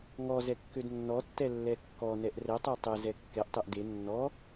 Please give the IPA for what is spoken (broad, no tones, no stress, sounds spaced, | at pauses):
ŋ ɔ z ɛ kː ø d nː ɔ tː ɛ lː ɛ kː ɔ n ɛ ʔ r ɛ tˤ ø tˤ e z ɛ kː ɛ ʔ tˤ e ʔ d e nː ɔ